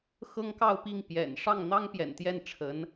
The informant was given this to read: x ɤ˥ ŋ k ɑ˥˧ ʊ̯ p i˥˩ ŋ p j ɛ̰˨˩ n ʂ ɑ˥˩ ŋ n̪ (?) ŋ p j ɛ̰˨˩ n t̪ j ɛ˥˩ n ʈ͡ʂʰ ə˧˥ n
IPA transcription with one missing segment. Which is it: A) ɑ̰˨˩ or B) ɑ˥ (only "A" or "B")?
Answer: B